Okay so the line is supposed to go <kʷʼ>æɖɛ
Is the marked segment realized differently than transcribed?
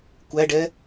yes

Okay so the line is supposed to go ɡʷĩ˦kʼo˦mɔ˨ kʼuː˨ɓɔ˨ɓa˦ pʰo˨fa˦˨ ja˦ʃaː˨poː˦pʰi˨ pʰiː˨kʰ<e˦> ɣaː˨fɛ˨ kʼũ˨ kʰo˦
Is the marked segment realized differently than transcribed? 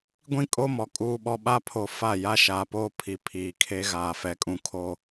no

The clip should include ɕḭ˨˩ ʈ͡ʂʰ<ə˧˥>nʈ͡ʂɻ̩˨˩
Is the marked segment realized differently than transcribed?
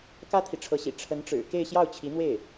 no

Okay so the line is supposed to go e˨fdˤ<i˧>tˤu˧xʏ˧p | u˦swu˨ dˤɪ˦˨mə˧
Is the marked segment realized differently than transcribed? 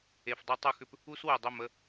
no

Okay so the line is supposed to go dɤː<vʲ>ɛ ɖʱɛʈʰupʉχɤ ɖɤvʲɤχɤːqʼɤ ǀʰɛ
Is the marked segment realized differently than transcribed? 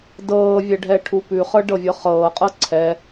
no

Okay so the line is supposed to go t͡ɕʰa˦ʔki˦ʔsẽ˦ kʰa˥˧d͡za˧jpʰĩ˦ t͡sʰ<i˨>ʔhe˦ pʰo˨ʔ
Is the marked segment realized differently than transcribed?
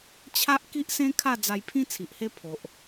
no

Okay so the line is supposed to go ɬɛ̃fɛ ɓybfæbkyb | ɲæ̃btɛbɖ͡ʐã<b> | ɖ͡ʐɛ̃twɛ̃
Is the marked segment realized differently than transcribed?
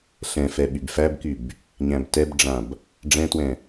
no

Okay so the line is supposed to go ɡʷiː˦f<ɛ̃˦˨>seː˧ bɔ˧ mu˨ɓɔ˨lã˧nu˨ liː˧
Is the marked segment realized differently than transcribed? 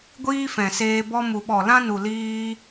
yes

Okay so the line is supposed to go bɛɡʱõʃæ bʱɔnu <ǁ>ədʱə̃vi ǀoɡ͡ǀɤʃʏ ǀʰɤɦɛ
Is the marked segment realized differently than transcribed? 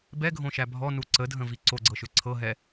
yes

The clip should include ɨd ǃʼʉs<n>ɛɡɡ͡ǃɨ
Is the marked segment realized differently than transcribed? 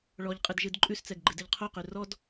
yes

